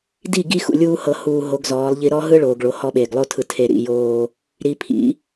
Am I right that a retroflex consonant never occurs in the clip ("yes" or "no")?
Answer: no